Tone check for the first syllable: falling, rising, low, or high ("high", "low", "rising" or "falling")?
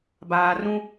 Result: low